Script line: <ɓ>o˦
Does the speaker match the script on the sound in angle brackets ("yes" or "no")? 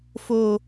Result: no